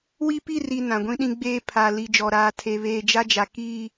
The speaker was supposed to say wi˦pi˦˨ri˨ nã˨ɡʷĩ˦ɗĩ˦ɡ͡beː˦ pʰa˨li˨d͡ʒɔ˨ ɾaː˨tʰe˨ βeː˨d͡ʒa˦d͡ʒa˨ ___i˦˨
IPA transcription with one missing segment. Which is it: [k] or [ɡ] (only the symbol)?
k